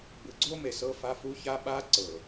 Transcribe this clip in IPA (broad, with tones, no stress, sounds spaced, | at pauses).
b ɯ˨ ɡ͡ǀ o˦ m e˨ s ɤ˦ f a˦ f u˦ ç a˦ ɓ a˦ ǀ ɤ˨